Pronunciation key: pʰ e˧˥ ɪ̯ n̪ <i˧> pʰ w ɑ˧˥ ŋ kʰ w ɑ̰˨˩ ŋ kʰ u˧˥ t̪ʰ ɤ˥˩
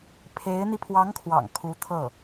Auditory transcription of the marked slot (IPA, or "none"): i˧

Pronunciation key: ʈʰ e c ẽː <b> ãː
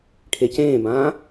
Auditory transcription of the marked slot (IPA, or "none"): b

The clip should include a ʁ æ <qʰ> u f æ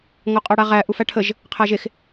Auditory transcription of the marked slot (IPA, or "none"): ʔ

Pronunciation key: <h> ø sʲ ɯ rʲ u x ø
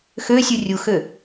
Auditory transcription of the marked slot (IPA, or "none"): x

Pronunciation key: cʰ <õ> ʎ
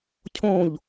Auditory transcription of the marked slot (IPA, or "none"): õ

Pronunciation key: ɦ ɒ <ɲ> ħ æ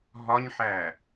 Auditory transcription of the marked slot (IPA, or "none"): ɲ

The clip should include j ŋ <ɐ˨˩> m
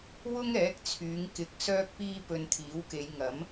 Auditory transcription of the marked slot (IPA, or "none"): ɐ˨˥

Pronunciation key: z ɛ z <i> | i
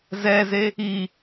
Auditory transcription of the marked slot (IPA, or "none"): e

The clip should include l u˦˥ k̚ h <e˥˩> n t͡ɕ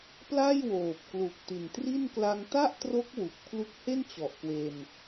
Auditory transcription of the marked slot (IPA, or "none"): e˥˩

